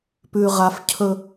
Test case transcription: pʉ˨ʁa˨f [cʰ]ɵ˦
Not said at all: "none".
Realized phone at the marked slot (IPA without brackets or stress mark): cʰ